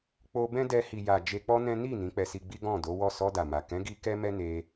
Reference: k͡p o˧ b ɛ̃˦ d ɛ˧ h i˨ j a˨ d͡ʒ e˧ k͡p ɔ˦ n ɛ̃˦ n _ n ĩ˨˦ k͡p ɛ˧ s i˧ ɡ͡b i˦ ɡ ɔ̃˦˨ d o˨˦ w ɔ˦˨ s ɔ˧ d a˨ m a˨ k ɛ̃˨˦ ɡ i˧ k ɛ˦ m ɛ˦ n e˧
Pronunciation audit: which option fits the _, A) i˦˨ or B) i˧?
A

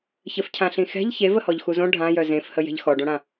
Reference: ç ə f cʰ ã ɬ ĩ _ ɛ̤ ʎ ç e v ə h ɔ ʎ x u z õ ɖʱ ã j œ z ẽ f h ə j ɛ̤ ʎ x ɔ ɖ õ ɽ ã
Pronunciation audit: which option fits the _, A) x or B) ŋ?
A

